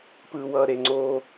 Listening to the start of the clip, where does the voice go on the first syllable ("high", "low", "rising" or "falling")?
low